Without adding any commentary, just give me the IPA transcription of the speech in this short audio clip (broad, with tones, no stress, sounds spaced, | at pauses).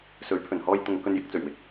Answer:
s ɵ˨˥ ɥ pʰ ɵ˨˩ n h ɔː˧ j t̪ ʊ˨ ŋ k ɵ˧ n j ɪ˨˥ k̚ t͡s ɵ˨˩ ɥ w ɪ˨˥ k̚